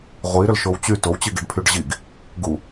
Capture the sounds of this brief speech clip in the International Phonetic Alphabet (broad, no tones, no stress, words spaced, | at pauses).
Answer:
ʁʷiɾʏlʃow t͡ɕy towt͡ɕiɡiɖpʰyɖ ʑiɡ | ɡu